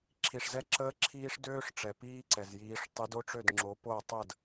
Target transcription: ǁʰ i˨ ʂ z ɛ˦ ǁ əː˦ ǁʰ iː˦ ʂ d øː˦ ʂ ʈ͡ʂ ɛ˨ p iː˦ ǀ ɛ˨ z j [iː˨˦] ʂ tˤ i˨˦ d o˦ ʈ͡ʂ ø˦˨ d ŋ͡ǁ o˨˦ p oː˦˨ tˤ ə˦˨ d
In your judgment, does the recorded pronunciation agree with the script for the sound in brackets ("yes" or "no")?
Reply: yes